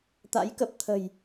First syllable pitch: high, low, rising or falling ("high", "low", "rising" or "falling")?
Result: rising